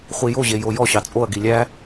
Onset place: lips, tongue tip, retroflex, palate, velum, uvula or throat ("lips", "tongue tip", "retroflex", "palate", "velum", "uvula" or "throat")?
uvula